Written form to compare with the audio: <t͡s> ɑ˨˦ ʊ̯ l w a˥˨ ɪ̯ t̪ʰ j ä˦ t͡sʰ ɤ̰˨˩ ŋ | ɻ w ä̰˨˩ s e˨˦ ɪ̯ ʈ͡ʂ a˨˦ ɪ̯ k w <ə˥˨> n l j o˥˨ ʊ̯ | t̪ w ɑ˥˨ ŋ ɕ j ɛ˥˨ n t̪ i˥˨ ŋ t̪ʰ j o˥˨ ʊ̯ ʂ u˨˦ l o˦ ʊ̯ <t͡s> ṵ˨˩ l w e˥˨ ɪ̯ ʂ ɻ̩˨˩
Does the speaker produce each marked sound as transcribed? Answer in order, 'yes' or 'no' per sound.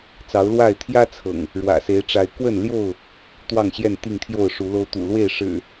yes, yes, no

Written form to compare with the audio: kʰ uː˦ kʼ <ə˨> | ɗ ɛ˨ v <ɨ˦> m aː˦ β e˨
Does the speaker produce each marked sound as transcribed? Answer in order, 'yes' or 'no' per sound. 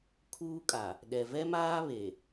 no, no

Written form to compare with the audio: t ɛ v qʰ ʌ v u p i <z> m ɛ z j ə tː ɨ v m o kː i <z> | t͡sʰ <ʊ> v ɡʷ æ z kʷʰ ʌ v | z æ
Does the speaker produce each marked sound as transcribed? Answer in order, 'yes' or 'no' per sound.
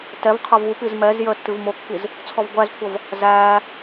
yes, yes, no

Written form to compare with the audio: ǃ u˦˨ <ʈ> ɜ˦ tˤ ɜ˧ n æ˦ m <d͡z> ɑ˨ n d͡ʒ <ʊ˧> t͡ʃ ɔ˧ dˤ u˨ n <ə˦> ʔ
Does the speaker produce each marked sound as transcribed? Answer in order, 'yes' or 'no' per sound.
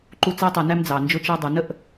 no, yes, yes, yes

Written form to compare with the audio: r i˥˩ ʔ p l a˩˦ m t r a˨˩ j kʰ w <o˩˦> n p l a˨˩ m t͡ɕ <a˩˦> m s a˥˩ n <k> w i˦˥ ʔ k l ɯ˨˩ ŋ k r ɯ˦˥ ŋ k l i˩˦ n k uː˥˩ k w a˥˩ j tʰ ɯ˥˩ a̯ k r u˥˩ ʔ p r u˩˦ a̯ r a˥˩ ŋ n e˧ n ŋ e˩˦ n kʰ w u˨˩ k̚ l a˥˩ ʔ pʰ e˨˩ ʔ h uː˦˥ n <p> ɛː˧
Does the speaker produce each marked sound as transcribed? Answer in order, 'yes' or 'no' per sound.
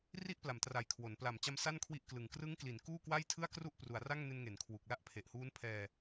yes, no, no, no

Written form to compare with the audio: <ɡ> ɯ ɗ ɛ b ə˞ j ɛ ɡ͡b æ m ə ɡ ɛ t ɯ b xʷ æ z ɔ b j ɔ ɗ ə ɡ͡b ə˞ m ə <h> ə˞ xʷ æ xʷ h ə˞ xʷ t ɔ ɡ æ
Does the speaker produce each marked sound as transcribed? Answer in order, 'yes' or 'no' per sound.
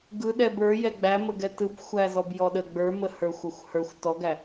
yes, yes

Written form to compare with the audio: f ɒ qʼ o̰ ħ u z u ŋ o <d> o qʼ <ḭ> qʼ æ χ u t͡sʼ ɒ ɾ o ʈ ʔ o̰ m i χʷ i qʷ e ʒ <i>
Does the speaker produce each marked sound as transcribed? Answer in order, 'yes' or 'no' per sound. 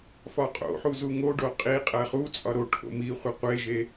no, no, no

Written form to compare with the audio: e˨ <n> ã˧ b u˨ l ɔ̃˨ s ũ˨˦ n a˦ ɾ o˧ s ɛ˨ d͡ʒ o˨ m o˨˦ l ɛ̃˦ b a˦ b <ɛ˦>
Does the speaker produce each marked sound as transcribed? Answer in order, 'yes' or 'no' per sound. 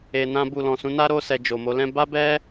yes, yes

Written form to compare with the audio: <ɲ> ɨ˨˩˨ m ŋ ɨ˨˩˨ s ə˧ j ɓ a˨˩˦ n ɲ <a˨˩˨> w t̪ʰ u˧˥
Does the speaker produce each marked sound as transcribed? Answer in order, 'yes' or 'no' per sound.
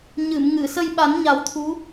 yes, no

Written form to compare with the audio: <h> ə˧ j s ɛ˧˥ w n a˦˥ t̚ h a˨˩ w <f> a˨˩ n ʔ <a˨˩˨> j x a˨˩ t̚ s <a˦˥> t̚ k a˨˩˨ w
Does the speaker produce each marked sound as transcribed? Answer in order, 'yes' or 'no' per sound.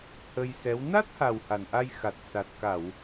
yes, no, no, no

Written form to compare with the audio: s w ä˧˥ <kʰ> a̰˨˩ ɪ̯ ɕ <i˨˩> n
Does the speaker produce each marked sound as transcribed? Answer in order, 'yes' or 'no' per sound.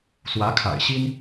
yes, no

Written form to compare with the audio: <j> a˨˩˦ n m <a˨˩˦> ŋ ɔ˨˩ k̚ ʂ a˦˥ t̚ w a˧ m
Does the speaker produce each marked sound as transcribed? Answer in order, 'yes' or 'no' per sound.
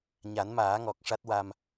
no, no

